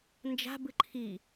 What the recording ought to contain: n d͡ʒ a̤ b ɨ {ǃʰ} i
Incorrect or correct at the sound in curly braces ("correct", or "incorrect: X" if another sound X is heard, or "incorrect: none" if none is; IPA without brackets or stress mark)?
correct